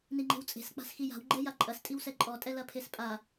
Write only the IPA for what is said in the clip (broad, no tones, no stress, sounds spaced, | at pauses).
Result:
n i ŋ͡ǃ e̤ w t͡sʼ e̤ s k͡p a̤ s x i j a̤ w ɡ͡ǃ ɛ j a ǃʼ ɐ s tʼ i w s ɛ ǃʼ ɔ tʼ ɛ l ɐ pʰ e s pʼ a